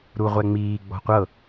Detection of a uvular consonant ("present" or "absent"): present